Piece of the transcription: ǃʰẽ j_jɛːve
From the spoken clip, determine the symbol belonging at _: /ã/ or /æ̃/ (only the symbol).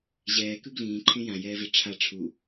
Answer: ã